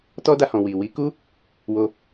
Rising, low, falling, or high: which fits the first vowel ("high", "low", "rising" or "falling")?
high